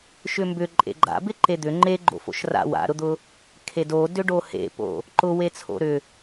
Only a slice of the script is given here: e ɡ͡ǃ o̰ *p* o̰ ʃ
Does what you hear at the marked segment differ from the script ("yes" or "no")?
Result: yes